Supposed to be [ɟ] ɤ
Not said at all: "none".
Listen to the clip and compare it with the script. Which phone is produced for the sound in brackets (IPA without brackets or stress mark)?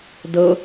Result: d